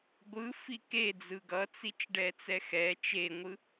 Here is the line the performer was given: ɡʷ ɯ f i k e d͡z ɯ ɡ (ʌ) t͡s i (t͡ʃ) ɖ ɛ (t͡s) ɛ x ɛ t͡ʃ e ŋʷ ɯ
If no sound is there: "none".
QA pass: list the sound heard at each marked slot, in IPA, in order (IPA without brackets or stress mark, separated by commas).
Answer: ʌ, t͡ʃ, t͡s